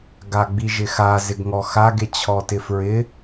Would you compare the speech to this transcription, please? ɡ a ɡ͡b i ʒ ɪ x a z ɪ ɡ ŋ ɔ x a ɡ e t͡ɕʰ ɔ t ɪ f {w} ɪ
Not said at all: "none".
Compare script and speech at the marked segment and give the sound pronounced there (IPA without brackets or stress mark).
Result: ɹ